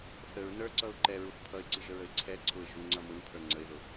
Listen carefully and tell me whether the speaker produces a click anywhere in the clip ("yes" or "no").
yes